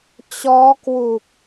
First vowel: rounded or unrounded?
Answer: rounded